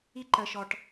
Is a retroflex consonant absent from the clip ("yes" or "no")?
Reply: no